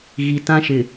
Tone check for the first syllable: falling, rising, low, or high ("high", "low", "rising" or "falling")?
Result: low